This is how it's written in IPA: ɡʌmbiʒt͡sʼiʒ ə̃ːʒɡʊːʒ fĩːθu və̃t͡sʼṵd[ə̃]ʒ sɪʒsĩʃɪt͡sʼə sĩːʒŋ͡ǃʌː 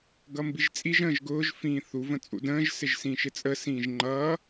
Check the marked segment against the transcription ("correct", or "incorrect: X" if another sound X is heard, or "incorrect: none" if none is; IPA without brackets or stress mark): incorrect: ə̃ː